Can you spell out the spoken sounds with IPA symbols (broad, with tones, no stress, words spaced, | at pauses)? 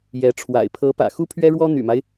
jɛ˧˥ ʈ͡ʂʰwa̰˨˩ɪ̯pʰɤ˧˥pä̰˨˩ xu˥pʰɥɛ˥ɻwɔ˥ n̪y̰˨˩ma˦ɪ̯